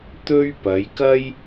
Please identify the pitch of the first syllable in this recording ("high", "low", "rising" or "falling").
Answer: high